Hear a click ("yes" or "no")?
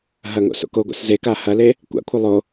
no